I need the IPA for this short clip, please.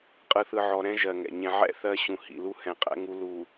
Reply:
qʼ ɯ˨ θ ɯ˨ ʕ ɔ˨ ɾ ɛ̃˦ ʒ ɜ˨ ŋ ɛ̰˨ ɲ ɛ̃˨ ʕ ɛ̰˦˨ θ ɜ˦ ɕ ũ˨ h ḭ˨ l u˦ h ɛ̃˨ qʼ ɛ̰˦ ŋ u˦ l u˨

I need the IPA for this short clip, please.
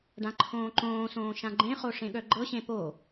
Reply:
ɖ ã ǃʰ õː ǃ õː s õː ʃ ã ɡ͡ǃ ẽ χ o ʂ ẽ ɠ œ ɡ͡ǃ ɤ ɕ ẽ p o

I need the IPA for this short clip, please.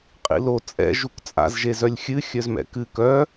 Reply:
qʼ ḭ l o t͡sʼ ɛ̰ ʒ u k t͡sʼ a̰ z ʒ e z œ lʲ xʲ ɨ xʲ œ z m ɛ̰ k ɨ k œ

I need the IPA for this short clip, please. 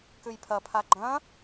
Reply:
k ʉ j pʰ ɐ pʰ a ɡ͡ǃ ɐ̃

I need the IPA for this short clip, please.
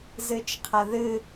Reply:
z ɨ t͡ʃ qʰ ɐ ð ɨ

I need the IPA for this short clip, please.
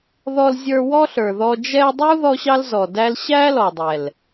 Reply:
ð ɔ˧ l zʲ ə˞˧ w ɔ˦ ɬ ə˞˨ ð ɔ˧ d͡ʒ ɛ˧ dˤ u˦ ð ɔ˦ ɕ ɑ˦ l z ɔ˨ d æ˦ l ɕ æ˦ l ɔ˨ dˤ ɛ˨ l

